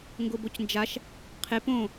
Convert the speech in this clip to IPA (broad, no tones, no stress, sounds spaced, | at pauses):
ŋ ɡ ʊ b o c n d͡ʒ a ʃ | qʰ e p õ